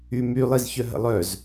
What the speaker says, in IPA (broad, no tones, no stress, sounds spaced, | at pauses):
y m y lˠ i z ç œ ɦ ə̰ lˠ œ z